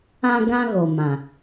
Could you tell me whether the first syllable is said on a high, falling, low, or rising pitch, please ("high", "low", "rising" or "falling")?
high